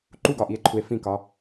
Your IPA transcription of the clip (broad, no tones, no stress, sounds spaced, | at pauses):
ǃ u ɡ ɒ ʔ i e̯ ǃʰ u e̯ f ĩ k ɒ